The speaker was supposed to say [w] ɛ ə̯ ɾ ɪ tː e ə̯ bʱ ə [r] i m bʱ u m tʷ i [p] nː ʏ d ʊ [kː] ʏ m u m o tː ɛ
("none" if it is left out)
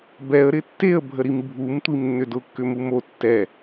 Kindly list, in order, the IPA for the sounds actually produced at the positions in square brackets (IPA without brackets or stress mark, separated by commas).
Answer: b, ɾ, m, kː